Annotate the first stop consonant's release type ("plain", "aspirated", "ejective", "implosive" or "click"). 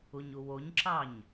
click